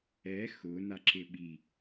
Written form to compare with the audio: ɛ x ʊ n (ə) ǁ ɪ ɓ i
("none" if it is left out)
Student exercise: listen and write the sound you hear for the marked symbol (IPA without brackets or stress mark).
a